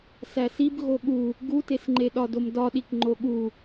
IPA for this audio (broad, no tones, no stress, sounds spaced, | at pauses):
s æ s i b ɣ o ɠ u | ɡ u t e s ŋ͡ǃ e ɗ ɒ d o m d ɒ ɗ i k ŋ͡ǃ o ɠ u